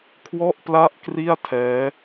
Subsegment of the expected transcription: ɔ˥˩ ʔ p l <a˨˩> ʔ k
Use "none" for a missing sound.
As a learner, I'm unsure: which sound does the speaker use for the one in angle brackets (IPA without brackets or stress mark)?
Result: a˥˩